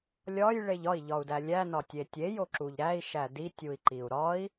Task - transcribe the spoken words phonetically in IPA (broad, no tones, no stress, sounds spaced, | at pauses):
lʲ ɒ j ɭ e ʎ ɒ i̯ ʎ ɒ u̯ d æ lʲ æ n ɒ tʲ e tʲ e j o ǁ u ʎ ɾ æ i̯ ʃ æ d i tʲ u i̯ ǃ i u̯ ɾ ɒ i̯